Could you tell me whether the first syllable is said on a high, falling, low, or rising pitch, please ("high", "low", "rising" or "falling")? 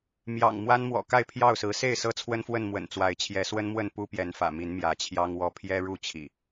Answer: low